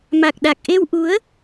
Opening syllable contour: low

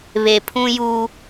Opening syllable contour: low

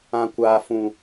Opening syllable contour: high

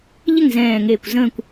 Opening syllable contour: falling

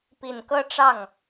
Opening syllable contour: low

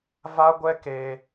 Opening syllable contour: high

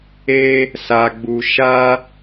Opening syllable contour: high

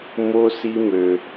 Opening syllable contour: high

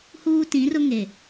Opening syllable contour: high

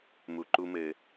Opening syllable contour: low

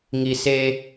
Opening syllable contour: low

